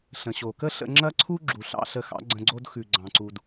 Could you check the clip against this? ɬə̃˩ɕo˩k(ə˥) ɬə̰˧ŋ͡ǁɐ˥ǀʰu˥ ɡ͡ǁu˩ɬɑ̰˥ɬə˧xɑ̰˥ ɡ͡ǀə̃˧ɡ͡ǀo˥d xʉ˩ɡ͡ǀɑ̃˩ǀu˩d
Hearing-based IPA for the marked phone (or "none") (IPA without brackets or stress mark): ə˥